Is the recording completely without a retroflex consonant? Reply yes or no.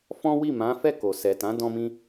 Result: yes